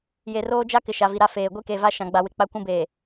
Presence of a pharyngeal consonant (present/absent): absent